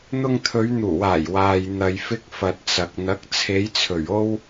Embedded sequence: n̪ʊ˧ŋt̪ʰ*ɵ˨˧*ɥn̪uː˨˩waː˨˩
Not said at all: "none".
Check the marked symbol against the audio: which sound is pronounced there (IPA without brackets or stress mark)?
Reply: ɵ˨˧